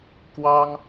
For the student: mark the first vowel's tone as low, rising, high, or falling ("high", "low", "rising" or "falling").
high